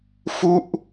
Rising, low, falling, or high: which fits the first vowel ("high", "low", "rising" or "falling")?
falling